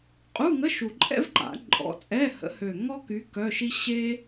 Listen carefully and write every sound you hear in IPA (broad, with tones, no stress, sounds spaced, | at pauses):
qʼ u˧˥˧ ŋ ə˧˥˧ ʃ u˨˩ ǃʼ ɛ̰˥ v ǃ a̰˨˩˦ ǃʼ ɔ̰˨˦ t͡sʼ ɛ˧˥˧ h ə̰˨˦ h ø˨˩ ŋ ɔ˥ k y˨˦ k œ˧˥˧ ʃ i˥ ɕ e˥